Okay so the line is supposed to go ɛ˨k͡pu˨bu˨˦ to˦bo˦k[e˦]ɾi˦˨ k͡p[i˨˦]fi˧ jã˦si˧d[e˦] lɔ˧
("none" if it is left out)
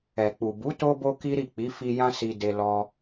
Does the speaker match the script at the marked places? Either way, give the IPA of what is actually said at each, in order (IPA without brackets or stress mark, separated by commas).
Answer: i˦, i˨˦, e˧